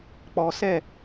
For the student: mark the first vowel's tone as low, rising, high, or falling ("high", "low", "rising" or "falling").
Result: low